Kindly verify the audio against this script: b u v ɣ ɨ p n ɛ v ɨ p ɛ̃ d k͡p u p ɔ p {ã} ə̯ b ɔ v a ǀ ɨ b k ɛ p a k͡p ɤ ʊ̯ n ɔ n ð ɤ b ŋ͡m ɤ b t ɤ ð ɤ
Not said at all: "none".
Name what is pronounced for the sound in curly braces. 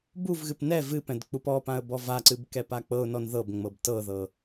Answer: ã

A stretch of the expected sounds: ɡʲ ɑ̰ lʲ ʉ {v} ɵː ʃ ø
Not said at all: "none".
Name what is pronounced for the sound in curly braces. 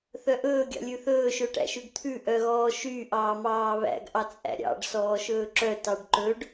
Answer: θ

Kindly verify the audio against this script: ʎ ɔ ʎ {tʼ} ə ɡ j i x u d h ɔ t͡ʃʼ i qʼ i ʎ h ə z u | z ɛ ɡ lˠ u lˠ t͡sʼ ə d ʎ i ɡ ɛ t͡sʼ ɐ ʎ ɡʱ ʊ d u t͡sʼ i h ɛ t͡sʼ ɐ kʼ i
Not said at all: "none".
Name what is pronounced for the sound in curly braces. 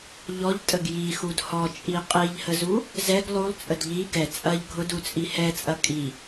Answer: tʼ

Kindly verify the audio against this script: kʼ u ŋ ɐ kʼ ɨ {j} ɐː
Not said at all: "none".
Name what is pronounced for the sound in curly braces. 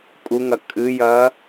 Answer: j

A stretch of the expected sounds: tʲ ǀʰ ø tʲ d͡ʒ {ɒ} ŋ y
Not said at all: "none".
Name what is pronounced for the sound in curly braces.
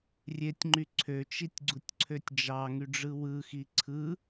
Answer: ɑ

